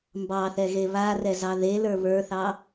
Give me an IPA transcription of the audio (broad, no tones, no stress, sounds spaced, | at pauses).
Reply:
m b ɑ θ ɛ ɣ e β a r ɛ z ɑ ð e l ə˞ β ə˞ θ ɑ